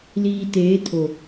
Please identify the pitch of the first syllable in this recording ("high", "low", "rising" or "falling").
low